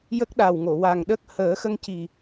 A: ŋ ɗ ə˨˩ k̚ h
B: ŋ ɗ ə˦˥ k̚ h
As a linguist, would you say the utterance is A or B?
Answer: B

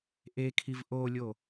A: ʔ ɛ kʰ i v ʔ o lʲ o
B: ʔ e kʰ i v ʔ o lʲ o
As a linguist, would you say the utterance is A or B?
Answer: B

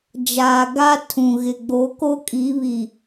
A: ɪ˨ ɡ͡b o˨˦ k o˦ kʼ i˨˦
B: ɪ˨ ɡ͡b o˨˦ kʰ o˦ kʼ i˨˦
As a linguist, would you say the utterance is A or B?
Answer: A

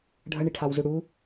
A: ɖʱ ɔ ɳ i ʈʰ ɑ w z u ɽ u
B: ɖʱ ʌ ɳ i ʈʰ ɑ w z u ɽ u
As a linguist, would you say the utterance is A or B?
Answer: B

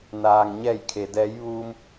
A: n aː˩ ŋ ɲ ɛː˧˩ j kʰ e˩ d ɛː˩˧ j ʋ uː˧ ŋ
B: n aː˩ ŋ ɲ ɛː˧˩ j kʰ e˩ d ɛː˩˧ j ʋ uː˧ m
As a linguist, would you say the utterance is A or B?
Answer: B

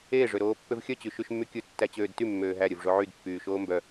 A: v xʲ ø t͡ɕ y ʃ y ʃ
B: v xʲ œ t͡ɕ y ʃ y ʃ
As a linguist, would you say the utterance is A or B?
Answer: B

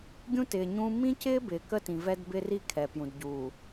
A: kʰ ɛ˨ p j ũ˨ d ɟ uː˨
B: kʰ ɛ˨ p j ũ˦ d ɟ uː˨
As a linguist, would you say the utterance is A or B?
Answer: A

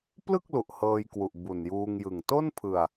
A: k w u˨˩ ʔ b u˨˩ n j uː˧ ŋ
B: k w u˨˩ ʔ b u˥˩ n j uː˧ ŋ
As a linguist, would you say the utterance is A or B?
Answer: A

